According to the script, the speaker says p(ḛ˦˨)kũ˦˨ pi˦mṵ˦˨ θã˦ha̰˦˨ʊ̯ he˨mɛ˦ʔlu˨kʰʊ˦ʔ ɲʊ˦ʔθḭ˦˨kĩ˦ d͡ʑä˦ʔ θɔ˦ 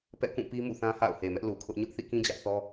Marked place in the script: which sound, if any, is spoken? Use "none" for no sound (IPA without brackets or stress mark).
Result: ɛ̰˦˨